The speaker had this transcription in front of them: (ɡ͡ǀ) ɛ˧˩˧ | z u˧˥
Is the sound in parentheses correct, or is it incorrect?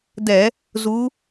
incorrect